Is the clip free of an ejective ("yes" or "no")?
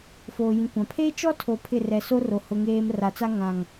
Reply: yes